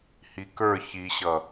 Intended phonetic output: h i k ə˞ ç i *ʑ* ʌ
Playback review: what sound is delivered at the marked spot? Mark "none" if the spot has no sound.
ɕ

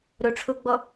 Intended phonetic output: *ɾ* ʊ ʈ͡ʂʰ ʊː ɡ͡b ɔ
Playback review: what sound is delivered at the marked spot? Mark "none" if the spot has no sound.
ɾ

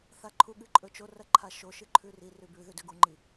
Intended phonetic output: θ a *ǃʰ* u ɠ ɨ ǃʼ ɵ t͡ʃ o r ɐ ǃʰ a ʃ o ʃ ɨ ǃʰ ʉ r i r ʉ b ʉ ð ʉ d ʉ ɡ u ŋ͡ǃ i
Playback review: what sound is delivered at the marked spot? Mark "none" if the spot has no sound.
ǃʰ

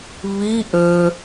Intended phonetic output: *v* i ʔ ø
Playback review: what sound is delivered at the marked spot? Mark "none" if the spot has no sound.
β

